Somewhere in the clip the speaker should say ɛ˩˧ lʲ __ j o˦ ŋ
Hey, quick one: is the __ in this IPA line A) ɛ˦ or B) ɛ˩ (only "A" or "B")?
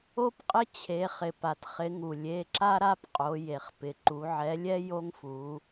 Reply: A